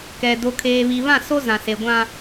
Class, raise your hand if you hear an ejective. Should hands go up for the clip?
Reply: no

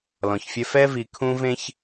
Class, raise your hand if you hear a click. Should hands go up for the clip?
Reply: no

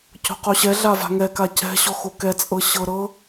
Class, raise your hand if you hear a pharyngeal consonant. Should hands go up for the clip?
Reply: no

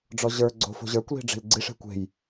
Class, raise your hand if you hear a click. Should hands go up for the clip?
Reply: yes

